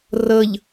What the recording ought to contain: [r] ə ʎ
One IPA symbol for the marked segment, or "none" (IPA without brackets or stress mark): r